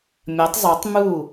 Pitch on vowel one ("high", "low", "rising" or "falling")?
rising